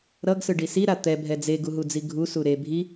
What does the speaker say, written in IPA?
ɾ ʌ ɡ s ɯ ɖ i s i ɾ a t̪ ɛ bʱ ɛ d͡z e ɡ u ɦ u d͡z i ɡʱ u s u ɾ e bʱ i

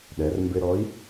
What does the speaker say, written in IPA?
ɗ ɛ˩˧ r m b ɪ˧ ɾ ɔ˧˥ i̯

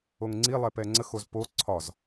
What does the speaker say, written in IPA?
o ŋ ŋ͡ǀ i lˠ ɛ p ɛ ŋ͡ǀ ə x o z p o ǀʰ ɒ z

